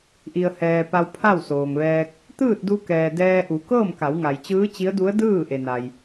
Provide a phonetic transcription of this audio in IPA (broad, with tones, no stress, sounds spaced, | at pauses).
ʔ i˩ ə̯ h ɛː˩ p a˧ w pʰ a˥˨ w s oː˩ ŋ ʋ ɛː˧ k̚ | t̪ ɯː˥˨ t̚ d u˧ k ɛː˩ d ɛː˧ ʔ u˩˧ k ɤː˥˨ m k a˩˧ w ŋ a˩ j t͡ɕ ɯː˧˥ t͡ɕ i˧˥ ə̯ d u˧˥ ə̯ d ɯː˥˨ ʔ e˩ n a˩ j